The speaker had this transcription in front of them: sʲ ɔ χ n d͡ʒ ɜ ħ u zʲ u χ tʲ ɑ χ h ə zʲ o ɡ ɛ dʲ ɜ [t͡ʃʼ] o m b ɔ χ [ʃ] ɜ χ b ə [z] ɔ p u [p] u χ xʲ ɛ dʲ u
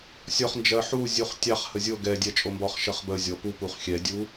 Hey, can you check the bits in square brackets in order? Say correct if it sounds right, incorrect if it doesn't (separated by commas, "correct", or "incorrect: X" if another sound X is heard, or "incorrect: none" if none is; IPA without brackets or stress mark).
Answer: correct, correct, incorrect: zʲ, correct